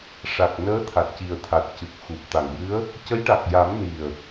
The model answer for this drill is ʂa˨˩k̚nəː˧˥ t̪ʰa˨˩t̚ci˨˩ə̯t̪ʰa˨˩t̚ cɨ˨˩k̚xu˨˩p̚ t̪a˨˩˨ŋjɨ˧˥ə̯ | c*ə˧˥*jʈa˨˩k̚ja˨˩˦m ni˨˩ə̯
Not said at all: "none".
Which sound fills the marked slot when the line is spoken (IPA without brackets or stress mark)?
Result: ə˧˥